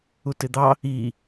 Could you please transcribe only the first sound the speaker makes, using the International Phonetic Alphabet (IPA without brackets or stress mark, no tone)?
u